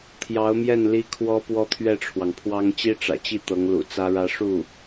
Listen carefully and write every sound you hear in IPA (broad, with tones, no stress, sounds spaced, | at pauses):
t̪ʰ j ɑ˧˥ ʊ̯ m j ɛ˥˩ n l i˥ kʰ w ɔ˥ p w ɔ˥ t̪ʰ ɥ ɛ˥˩ ʈ͡ʂʰ w ɑ˩ ŋ pʰ w ɑ˥ ŋ t͡ɕ i˥ ʈ͡ʂ ä̰˨˩ t͡ɕ i˥˩ t̪ ɤ˧˥ ŋ l ṵ˨˩ t͡s ä˥ ɻ ä˥ ʂ u˥˩